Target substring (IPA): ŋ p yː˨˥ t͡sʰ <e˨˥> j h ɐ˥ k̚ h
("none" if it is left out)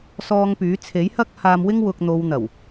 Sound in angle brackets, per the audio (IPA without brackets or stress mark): e˨˥